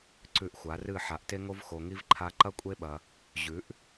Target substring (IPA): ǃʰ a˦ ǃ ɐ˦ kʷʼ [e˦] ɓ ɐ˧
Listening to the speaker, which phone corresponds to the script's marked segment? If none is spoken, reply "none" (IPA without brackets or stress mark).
e˦